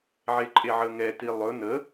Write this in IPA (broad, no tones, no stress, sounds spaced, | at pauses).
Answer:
ʕ e ǃʼ e ʕ ə ŋ ɛ t i lˠ ɵ n ə